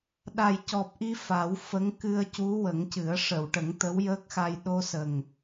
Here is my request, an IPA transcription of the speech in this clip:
ɗ a˨˩ j c ɔ˨˩ p̚ ʔ i˧ f a˨˩˦ w f ə˧˥ ŋ k ɨ˧ ə̯ c u˧˥ w ə˨˩˦ ŋ c ɨ˨˩˦ ə̯ ʂ ə˨˩˨ w ʈ ə˨˩˦ ŋ t̪ ə˧˥ w j əː˦˥ k̚ x a˧ j ɗ o˧ s ə˨˩ ŋ

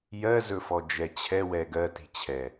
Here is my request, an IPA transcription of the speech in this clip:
j ɜ z ɵ f ɔ d͡ʒ ɛ t͡ɕʰ ɛ w ɛ ɡ ɜ t i̤ t͡ɕʰ ɛ

